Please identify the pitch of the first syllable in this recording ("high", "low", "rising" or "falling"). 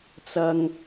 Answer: high